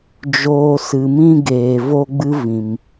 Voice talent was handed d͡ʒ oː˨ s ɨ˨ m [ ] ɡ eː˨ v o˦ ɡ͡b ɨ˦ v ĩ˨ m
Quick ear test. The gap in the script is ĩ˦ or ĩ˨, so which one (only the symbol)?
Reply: ĩ˦